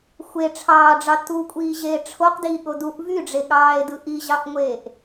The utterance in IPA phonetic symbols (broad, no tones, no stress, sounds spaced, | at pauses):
xʷ e ʈ͡ʂʰ ɑː ɖ͡ʐ ɑ t u kʷʼ iː ʑ eː ʈ͡ʂʰ o q d iː ɠ o d u ʔ v y ɖ͡ʐ e ɠ ɑː e̯ d ɯ ʔ i ʑ ɑ ʔ ŋʷ eː ʔ